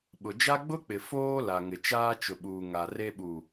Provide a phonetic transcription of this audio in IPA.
ɓ ʊ˨ d͡ʒ a˦ ɡ͡b ʊ˦ k͡p ɪ˨ f oː˦ l a˨ ŋ ɪ˨ t͡ʃ aː˦ t͡ʃ ʊ˨ ɓ uː˨ ŋ a˨ r e˦ ɓ u˨

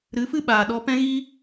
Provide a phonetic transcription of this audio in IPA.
ɾ ɨ˨˦ f ɨ˦ ɓ aː˨ ɗ ɔ˧ p ɛ̃˦ ɣ i˦

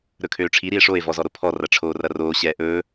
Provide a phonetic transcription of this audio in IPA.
ɾ ɵ kʰ øː ʈ͡ʂʰ i ɾ i e̯ ʂ o e̯ v ɔ z ɔ ɾ o pʰ ɔ r ɐ ʈ͡ʂʰ oː r ɐ r oː ɕ ɛː ʔ ɵː

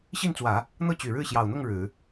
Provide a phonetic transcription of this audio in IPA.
ɕ i˥˩ n t͡s w ä˨˩˦ | n̪ ɤ˥˩ t͡ɕ y˨˩ ɻ ɻ̩˥˩ ɕ j ɑ˨˩ ʊ̯ n̪ ʊ˥˩ ŋ ɻ ɻ̩˨˩˦

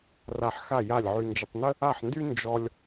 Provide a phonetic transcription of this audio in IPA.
r a˥˩ ħ x a˥˩ j a˥˩ lʲ ʕ y˧ n d͡ʒ ə˧ tˤ n ə˥ | a˥˩ ħ n d y˥ n d͡ʒ ɔ˧ lʲ

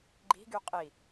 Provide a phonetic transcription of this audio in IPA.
ɡ͡ǃ i̤ ɡ y qʼ i

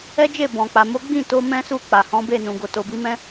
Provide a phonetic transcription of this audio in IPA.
ɛ˦ d͡ʒ e˦˨ b ɔ̃˨ k͡p a˨ m o˨˦ ɡ͡b ĩ˦˨ t o˧ m ɛ̃˦ s u˦˨ k͡p a˨ h ɔ̃˨˦ b e˦˨ n ũ˨ ɡ o˨ t o˨ b i˨˦ m ɛ̃˦

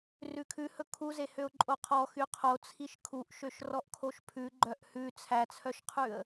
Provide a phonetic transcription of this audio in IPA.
r ʉ kʰ ʉ h ɵ kʰ u z e h ø ʊ̯ ǃʼ o qʰ ɔ x y qʰ o t͡sʰ i ʃ kʰ u ʔ ʃ ø ʃ r ɔ ʔ kʰ o ʃ pʰ ʉ ɡ͡ǃ œ ʔ h ʉ t͡sʰ æ t͡sʰ œ ʃ qʰ ʉ ə̯

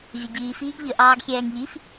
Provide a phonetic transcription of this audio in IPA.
vʲ ə ɟ iː f iː ɡ ʎ ə ʔ ɑː ɡ xʲ ɛː ŋ ʎ i f

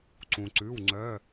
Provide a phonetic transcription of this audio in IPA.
ǀ ũ˩ ǀ ʉ˩˧˩ w ŋ͡ǀ œ˩˧˩

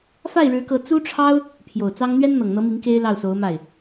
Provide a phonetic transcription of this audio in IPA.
f a˥˩ ɪ̯ ɻ ɻ̩˧˥ k ɤ˧˥ t͡s u˥ ʈ͡ʂʰ ɑ˥ ʊ̯ | pʰ j o˨˩ ʊ̯ t͡s ɑ˥ ŋ n̪ ɥ ɛ˥ n n̪ ɤ˨˩ ŋ n̪ ɤ˧˥ m i˧˥ ŋ k e˥ ɪ̯ l ɑ˥˩ ʊ̯ s o˧˥ ʊ̯ m a˥˩ ɪ̯

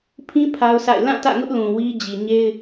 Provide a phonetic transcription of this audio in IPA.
pʰ ĩ˦ pʰ a˦ ʊ̯ s a̰˦˨ ɪ̯ l ã˦˨ t ä̰˦˨ ŋ ʊ˦ ʔ l ũ˨ w i˦ d͡ʑ i˨ ɲ e˦ ɪ̯

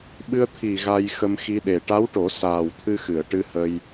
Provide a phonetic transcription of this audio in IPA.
ɓ ɨ˧ ə̯ t̪ʰ i˨˩ ɣ a˧ j x ə˧ m x i˧ ɗ e˨˩ ʈ a˧˥ w ʈ o˨˩˦ s aː˨˩ w t̪ʰ ɨ˧ x ɨ˨˩˨ ə̯ ʈ ɨ˧ h ə˧ j

